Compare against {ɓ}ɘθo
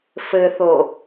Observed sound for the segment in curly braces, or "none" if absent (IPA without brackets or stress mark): f